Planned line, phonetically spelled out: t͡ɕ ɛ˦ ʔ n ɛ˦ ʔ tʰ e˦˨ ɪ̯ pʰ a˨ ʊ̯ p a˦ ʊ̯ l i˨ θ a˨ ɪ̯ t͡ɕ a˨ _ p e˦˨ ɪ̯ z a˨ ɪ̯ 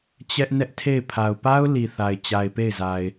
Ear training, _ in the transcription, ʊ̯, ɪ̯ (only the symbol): ɪ̯